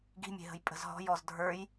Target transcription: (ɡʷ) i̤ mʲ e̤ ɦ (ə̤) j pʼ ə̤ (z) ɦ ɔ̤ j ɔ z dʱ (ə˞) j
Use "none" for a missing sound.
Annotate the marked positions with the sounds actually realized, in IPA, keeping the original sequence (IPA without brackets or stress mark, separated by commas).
ɡ, ə̤, z, ə˞